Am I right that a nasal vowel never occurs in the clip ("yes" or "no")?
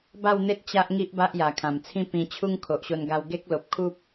no